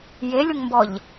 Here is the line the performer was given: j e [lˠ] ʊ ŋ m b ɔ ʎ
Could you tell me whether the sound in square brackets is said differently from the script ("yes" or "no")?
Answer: yes